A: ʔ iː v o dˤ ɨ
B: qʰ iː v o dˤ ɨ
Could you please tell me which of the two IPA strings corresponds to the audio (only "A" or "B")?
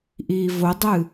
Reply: A